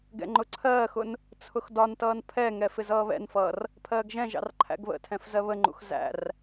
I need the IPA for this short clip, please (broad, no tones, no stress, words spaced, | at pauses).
ɡɛ̰ŋ͡ǃʊǀʰɜːxʊn | t͡sʰʊxdɒntʌːn pʰɛŋɛ fɪzʌːβɛ̰nfʌːr | pʰɜːɡʒɛ̃ʒɑ̰r ǃʰæ̰ɡβə̰tʰɛ̃f zɜβəŋ͡ǃṵx zæ̰r